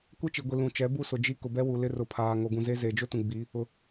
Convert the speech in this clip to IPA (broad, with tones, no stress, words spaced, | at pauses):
kʷe˦t͡ʃi˨ɡʷi˨ lũ˨t͡ʃɛ˨˦ bu˦sʊ˨ d͡ʒi˦ kʊ˨bɛ˦wu˨ lɪ˦rʊ˨˦pʰaː˨ ŋo˨ɡũ˨ze˦ ze˨d͡ʒʊ˦tũ˨ ɡ͡bi˨˦ | ʊ˨